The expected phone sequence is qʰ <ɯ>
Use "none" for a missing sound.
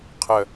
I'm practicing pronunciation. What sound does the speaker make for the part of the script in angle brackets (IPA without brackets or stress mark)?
ə